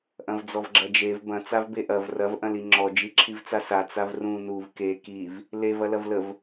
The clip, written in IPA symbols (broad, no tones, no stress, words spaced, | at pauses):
ʔɐ̃vd͡zɔvɡ͡ǁɐd͡ʒev bɐ̃ t͡savbeʔɐv rɐv ʔɐ̃liŋ͡ǁɔ d͡ʒiǁʰivt͡sasa t͡savrũ nuv ke kiv | lev ɐlɐvləv